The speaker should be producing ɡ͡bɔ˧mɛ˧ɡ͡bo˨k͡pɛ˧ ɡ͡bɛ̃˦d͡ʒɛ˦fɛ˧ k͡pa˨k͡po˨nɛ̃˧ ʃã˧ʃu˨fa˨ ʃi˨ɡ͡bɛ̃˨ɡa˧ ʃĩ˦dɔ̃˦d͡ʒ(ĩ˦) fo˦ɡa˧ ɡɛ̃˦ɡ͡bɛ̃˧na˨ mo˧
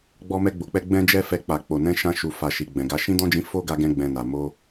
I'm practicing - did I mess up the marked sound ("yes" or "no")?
yes